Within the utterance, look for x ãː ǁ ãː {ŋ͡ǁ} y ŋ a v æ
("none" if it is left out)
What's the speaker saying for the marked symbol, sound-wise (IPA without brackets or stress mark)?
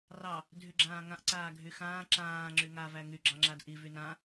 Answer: ŋ͡ǁ